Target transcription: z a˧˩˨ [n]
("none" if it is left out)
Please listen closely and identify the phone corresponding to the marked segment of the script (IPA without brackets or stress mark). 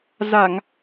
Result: ŋ